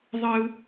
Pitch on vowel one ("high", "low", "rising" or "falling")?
high